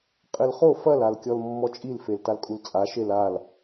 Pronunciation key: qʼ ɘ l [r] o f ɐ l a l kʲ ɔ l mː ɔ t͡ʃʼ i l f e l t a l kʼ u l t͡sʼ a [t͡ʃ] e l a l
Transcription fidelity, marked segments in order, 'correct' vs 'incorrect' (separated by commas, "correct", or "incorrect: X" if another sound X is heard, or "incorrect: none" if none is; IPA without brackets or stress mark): incorrect: χ, incorrect: ʃ